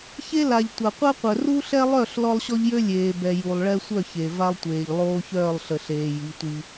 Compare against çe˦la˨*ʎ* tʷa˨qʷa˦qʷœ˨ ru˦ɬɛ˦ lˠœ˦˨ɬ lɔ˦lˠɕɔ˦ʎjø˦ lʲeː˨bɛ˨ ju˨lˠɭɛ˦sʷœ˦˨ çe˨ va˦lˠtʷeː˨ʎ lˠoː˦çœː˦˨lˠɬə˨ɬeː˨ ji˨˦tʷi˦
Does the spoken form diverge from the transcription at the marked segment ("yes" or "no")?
no